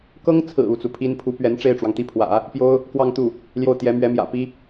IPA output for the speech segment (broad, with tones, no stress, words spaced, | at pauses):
kɤ˥ŋt͡sʰɹ̩˨˩ u˥˩t͡su˩pʰi˥n pʰu˧˥pɥɛ˧˥n ʈ͡ʂe˥˩ɪ̯ʈ͡ʂwɑ˩ŋt̪i˥˩pʰwä̰˨˩˦ | pjo˥ʊ̯ | kwɑ˥˧ŋt̪u˥˩ | ljo˥˩ʊ̯t̪jɛ˧˥ mɥɛ˧˥mjä̰˨˩ pi˥